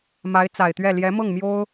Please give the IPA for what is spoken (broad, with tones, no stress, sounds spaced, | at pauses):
m a˧˥ ɪ̯ t͡s a˨˩ ɪ̯ t̪ ɥ ɛ˥˩ l j ɛ˧˥ m ɤ˥˩ ŋ m j o˥ ʊ̯